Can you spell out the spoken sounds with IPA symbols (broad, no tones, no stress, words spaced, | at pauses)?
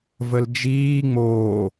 vəld͡ʒiː ŋ͡moː